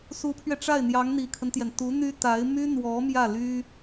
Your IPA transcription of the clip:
su˧˥pʰɥɛ˧ʈ͡ʂa˥˩ɪ̯n̪jɑ˧˥ŋ n̪i˨˩kʰə˦nt̪jɛ˩n t̪u˧˥n̪y˥ t̪a˧˥ɪ̯ my˥n̪wɔ˧˥ mjä˥˩ly˥

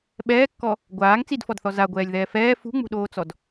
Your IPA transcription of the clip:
ɓɛːkːɔ | ɡʷaːŋ t͡sidfɔdθɔ zaɡʷɛːlʲðɛː fɛː fṳŋ͡mṳɗoːt͡sɔd

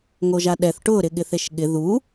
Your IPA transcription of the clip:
ŋoʒaɗɛθ ʈʊ ɾɪɠɪθeʃɠɪ ðu

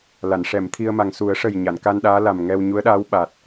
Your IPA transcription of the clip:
la˨˩˨nʂɛ˨˩˨mt̪ʰi˧ə̯ma˨˩ŋ su˨˩˦ə̯ʂə˨˩j ɲa˨˩˨nka˧nɗaː˧˥la˨˩m ŋɛ˧wɲu˧˥ə̯ɗaː˧˥wɓa˨˩t̚

